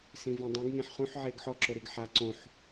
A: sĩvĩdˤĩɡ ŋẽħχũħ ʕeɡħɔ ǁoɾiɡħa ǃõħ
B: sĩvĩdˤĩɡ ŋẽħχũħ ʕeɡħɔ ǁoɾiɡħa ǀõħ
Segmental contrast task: B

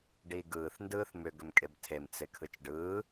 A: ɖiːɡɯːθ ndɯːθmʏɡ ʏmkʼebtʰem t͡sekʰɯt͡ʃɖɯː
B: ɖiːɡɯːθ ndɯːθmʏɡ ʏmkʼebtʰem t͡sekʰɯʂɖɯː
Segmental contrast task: A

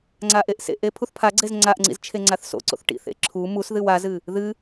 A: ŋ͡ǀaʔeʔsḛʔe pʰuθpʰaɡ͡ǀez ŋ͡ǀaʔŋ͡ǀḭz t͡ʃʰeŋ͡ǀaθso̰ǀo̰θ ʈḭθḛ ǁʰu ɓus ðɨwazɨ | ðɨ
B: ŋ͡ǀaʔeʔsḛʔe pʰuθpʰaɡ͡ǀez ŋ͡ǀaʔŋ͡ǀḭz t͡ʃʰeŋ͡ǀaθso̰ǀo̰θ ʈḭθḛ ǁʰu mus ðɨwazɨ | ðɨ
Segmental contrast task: B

